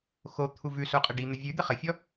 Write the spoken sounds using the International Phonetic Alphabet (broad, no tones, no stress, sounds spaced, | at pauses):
x o t̪ʰ u v ʉ s o qʼ ə ɖ i n̪ ə vʲ ʉ d̪ ɘ χ ə fʲ ɔ